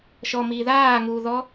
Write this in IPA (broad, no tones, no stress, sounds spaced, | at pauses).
ʃ ɔ m iː ð aː ŋ uː ð ɔ